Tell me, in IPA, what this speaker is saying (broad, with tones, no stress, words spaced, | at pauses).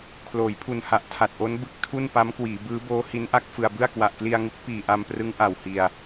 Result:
kʰloː˩˦jpʰu˨˩nha˨˩ʔ tʰa˨˩t̚ʔo˦˥n bɯ˦˥k̚tʰu˥˩n pa˦˥mkwiː˩˦ bɯː˦˥boː˦˥ hi˦˥nʔa˥˩k̚fɯ˧a̯bɯ˥˩a̯ kwa˨˩ʔkli˧a̯ŋu˦˥k̚ piː˨˩ʔa˧mprɯ˦˥ŋ ʔa˨˩whi˨˩a̯